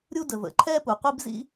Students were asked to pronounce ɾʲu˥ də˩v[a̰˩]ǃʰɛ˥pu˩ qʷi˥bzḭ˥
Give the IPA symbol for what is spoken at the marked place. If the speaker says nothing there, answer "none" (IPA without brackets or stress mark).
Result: ə̰˩